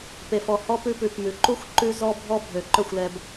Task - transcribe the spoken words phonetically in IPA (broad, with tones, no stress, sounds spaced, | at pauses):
p e˨ f ɔ˨ h ɔ˦ p ʉ˦ p ʉ˨ p m ʉ˨ ǃ u˦ xʷ ǃ ʉ˦ z ɔ˦ bʱ ɔ˦ bʱ ø˨ ǃ œ˦˨ xʷ l ɛ˨ b